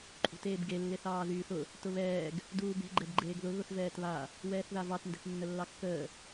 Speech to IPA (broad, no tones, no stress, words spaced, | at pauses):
ǃʼṳteːbɡe lːeθɑːðyːθʊ | tʊβɛːɡ | duːbe̤ ɡ͡ǃɛbɡ͡ǃeːɡðʊ ɣʊθvɛːtβa | wɛːθðavɑt ndɛ̤θnːəlːɑkːəː